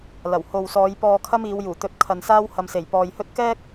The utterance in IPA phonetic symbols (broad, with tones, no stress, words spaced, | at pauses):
lɐ˨˩who˨wsɔː˨˧j pɔː˧kʰɐ˥m iː˨˧w juː˨˩t̪ɵ˧t̚ kʰɐ˨nsaː˥w hɐ˨mse˨˩jpɔː˨jhɵ˥t̚ kɛː˥k̚